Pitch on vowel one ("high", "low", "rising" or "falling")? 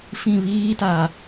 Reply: falling